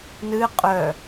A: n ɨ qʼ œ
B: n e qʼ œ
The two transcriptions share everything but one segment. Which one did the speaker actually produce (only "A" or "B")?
A